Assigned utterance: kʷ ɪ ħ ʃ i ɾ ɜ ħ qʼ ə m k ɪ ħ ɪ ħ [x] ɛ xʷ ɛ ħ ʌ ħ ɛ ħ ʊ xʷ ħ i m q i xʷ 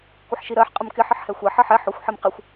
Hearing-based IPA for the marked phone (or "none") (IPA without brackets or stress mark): h